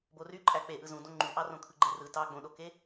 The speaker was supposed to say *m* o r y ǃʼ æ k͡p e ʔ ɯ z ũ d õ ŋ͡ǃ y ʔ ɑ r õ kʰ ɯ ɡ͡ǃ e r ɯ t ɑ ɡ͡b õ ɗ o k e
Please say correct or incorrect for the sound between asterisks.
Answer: incorrect